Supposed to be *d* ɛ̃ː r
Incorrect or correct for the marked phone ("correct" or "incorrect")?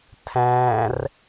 incorrect